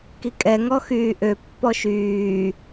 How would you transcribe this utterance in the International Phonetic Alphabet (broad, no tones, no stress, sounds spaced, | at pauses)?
k i kʼ ɛ ŋ ɔ x yː ʔ ø pː ɔ ʃ yː